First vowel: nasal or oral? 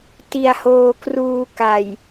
oral